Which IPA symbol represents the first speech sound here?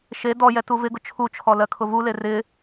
ʃ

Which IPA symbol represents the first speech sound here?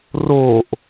r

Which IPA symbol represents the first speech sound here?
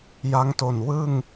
j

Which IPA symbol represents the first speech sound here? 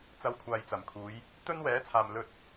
t͡s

